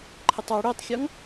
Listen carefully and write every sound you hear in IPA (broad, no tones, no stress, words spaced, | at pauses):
ǃʰətˤɔ ɽɵːtˤxʲɔŋ